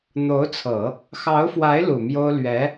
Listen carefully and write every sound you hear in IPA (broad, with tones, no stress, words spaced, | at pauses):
n̪o˧˥ʊ̯t͡sʰɤ˨˩˦ | xɑ˧˥ʊ̯fwa˧˥ɪ̯ lu˨˩mjo˥ʊ̯ lɥɛ˧˥